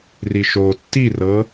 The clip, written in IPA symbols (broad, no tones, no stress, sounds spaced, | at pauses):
r i ʃ o tː i r ɤ